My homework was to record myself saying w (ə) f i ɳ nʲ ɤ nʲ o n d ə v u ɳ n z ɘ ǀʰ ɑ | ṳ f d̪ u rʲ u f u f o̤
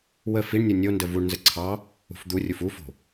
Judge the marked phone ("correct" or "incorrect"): correct